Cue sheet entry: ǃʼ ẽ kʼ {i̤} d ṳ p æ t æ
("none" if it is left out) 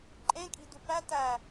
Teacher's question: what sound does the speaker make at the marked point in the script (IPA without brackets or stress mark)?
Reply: i̤